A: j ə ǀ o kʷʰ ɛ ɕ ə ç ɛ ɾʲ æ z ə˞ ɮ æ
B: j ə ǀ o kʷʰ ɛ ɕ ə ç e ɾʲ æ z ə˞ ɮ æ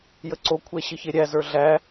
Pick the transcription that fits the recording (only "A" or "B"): B